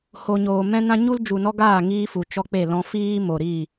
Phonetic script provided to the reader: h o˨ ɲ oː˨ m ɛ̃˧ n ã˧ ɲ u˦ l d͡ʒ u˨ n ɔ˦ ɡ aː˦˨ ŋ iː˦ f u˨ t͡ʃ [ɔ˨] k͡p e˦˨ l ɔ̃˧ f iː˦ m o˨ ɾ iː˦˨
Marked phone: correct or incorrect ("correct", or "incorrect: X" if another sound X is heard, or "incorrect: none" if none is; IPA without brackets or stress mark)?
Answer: incorrect: ɔ˦